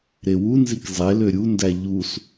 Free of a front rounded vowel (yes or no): no